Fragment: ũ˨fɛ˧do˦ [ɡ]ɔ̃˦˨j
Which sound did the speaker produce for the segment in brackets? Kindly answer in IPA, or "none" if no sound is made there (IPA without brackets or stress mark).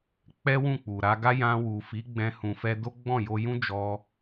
ɡ͡b